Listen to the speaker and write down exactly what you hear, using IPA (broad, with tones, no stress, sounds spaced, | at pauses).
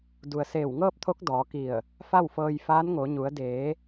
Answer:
d u˩ ə̯ s eː˧˩ w ŋ ɤː˥˨ p̚ t̪ʰ o˧˥ k̚ d ɔː˩˧ k i˧˩ ə̯ | f a˥˨ w f ɤː˧ j f aː˧˥ n ŋ o˩˧ ɲ u˩˧ ə̯ d eː˩˧